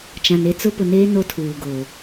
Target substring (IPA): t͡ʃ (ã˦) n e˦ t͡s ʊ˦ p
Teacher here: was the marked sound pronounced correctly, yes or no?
no